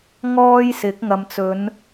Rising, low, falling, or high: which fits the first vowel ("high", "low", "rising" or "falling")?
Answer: high